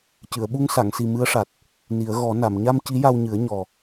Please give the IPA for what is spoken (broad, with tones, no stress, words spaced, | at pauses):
cɨ˨˩˨ə̯ɓu˧ŋsa˨˩˨ŋsi˨˩ mɨ˧˥ə̯ʂa˨˩t̚ | ni˨˩˦ə̯ɣɔ˨˩˦ na˨˩˨m ɲa˧m ci˧˥ja˧wɲɨ˨˩˦ə̯ ɲɔ˨˩